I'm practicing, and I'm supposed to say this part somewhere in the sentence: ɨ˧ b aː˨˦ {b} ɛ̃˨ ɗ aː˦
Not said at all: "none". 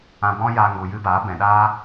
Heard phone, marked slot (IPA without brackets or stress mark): b